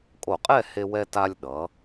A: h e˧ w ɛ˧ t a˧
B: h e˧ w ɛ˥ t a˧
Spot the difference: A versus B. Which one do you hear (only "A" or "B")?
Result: A